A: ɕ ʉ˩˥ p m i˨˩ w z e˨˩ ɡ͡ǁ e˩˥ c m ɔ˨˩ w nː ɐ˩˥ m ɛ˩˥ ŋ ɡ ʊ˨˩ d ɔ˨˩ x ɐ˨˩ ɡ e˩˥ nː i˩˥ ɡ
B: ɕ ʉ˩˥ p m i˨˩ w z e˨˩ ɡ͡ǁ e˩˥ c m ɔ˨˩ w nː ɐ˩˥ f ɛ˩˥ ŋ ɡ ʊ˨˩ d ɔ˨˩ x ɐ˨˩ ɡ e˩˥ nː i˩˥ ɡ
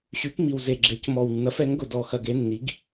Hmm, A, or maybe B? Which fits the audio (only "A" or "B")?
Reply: B